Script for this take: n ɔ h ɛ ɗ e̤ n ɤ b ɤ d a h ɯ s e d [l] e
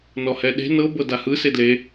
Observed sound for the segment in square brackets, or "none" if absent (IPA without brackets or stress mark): l